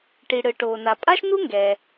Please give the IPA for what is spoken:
ʈ i˩ ɽ ɯ˩ ʈ oː˩ n a˩ pʼ a˥ ʃ n u˥ ŋ ɡ ɛː˩

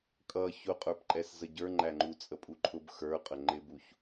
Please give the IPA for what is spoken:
kʼ ʌ ç ʊ qʼ ə˞ p ǃʼ ɛ s z ə ɟ ə˞ ŋ͡ǃ æ ŋ͡ǃ u t͡sʼ ə pʼ u ǃʰ ʊ b x ə˞ qʼ ə ŋ͡ǃ ɪ b u ç

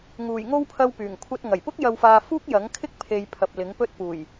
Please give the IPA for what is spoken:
ŋ uː˨˩ j ŋ o˧ w pʰ ɐ˨ w p yː˨˩ ŋ kʷʰ ɐ˧ t̚ ŋ ɐ˨˩ j p ʊ˥ k̚ j ɐ˧ w f aː˧ f uː˥ k̚ j ɐ˨˥ ŋ kʰ ɪ˥ k̚ pʰ e˨ j pʰ ɐ˨ p̚ l ɪ˨˥ ŋ p ɵ˥ t̚ p uː˨˩ j

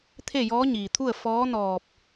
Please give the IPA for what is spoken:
t̪ʰ e˥˨ j ɔː˧˥ ɲ iː˩ t̪ʰ u˥˨ ə̯ f ɔː˧˥ n ɔː˧˩ p̚

